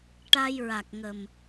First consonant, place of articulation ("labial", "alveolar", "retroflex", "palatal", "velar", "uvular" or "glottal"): retroflex